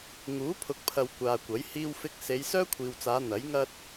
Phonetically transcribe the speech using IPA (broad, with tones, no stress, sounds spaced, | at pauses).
ŋ uː˨˥ pʰ ʊ˨ k̚ pʰ ɐ˨ w kʷ aː˨ kʷ ɐ˨˥ j h iː˧ w f ɪ˧ k̚ s e˨˧ j s œː˥ kʷʰ iː˨ w t͡s aː˨˧ n̪ ɐ˨˥ j ŋ ɐ˥ t̚